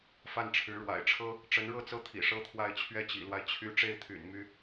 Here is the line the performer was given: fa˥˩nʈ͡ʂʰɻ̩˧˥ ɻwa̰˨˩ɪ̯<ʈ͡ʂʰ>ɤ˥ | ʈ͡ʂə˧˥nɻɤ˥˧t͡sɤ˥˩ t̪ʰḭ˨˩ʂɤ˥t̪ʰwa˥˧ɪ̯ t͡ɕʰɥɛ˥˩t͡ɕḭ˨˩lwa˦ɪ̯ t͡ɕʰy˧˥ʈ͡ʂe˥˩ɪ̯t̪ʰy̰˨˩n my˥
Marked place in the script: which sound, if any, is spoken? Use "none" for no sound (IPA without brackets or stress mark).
ʈ͡ʂʰ